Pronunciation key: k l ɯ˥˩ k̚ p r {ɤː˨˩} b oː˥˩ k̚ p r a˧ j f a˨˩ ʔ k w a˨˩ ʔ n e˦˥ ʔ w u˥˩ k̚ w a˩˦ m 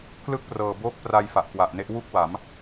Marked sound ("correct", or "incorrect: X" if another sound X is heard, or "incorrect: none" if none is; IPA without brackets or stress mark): correct